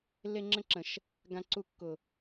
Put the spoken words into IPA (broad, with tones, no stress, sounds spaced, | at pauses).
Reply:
lː e˦ ŋ͡ǁ ə̃˦ ǁ ə̃˨ ʃ | ɡ ã˦ ǀ u˦ kː ʊ˨